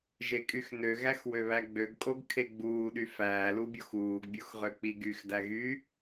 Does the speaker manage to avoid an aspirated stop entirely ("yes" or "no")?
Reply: no